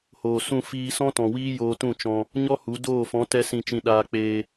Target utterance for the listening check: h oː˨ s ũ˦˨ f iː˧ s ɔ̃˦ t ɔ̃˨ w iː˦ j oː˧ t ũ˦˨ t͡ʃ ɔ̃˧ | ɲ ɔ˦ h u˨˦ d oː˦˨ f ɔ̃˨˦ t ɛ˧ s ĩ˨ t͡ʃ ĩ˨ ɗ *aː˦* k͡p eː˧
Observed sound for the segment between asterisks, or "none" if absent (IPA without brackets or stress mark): aː˧